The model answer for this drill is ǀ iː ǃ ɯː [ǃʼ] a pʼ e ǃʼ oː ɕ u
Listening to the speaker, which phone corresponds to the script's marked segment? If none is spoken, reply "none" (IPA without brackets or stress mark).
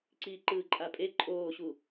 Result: ǃʼ